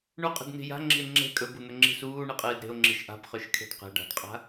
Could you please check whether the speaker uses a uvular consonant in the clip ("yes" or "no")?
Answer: yes